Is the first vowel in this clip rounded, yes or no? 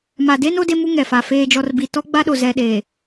no